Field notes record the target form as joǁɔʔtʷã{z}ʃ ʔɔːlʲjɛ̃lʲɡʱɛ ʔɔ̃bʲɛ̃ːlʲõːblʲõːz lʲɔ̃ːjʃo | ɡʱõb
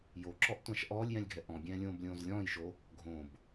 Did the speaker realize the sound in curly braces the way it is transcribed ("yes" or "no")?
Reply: no